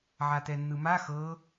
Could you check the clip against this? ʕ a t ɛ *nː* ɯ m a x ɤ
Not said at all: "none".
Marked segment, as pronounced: nː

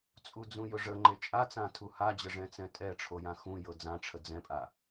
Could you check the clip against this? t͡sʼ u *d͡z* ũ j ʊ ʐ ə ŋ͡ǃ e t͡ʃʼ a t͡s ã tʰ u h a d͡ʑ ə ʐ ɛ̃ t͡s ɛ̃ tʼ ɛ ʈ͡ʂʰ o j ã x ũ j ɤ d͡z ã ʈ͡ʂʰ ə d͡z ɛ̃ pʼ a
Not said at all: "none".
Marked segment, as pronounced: d͡z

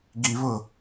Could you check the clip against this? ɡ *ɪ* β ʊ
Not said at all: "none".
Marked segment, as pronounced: i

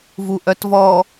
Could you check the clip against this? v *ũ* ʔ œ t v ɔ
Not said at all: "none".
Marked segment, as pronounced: u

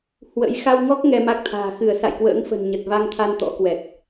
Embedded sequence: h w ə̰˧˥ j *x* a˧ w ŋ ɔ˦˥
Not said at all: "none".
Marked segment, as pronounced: x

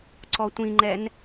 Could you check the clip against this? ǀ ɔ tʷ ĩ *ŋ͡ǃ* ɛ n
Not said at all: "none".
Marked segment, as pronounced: ŋ͡ǃ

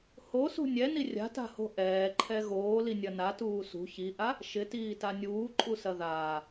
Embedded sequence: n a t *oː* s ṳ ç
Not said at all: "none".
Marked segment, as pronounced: uː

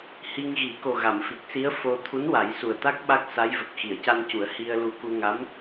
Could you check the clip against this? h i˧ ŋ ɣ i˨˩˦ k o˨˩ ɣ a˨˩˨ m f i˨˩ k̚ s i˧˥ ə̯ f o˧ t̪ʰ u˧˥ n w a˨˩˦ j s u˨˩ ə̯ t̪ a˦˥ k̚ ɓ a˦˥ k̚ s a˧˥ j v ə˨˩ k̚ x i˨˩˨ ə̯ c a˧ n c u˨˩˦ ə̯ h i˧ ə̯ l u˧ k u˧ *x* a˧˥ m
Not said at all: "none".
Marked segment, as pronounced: ŋ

